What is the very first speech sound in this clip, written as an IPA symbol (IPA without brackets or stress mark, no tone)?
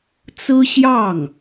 t͡s